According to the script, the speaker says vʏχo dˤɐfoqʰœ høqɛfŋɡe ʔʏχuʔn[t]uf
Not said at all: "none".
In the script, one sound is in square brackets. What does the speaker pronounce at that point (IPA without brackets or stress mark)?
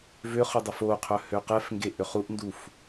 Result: d